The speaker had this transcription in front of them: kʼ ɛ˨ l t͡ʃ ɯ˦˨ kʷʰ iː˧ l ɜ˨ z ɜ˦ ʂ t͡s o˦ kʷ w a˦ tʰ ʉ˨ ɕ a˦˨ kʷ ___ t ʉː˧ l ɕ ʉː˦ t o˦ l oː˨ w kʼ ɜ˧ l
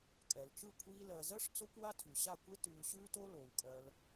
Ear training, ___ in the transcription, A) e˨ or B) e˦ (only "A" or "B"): B